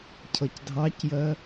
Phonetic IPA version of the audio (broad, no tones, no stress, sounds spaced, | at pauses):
cʰ ʌ c dʱ ɑ c j ɜ